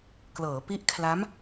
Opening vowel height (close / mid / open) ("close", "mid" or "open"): mid